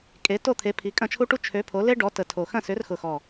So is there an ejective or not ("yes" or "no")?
yes